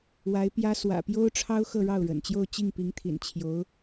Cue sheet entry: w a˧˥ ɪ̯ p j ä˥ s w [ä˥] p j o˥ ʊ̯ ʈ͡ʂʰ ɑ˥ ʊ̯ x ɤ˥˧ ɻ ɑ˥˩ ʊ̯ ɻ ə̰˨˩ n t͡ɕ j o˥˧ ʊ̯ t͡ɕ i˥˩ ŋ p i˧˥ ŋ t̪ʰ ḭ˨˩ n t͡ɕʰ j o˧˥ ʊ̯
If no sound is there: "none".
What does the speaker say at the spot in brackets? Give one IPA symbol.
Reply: ä̰˨˩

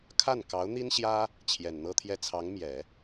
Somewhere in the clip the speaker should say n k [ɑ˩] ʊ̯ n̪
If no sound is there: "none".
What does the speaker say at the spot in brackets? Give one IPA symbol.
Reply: ɑ˧˥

